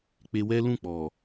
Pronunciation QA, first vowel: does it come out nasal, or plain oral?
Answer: oral